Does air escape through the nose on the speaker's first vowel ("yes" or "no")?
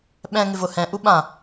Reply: yes